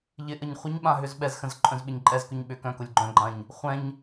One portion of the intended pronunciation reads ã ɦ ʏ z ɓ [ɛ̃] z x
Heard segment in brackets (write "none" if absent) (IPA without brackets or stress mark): ɛ